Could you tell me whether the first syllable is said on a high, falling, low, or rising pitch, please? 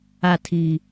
falling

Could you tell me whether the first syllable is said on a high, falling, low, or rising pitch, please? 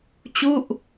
falling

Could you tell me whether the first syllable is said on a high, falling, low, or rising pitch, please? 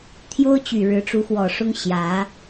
high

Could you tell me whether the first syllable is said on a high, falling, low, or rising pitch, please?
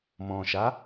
low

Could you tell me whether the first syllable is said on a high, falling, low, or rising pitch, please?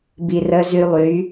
low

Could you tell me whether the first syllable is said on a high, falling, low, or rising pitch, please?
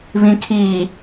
low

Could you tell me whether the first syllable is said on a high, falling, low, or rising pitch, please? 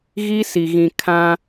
high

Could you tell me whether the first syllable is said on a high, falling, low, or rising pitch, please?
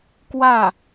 falling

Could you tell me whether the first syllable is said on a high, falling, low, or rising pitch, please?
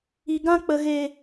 low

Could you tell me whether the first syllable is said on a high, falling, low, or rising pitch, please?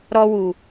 high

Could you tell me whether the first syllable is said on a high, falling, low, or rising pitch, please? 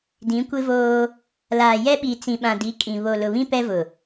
rising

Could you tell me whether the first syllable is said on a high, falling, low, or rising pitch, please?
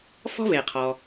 high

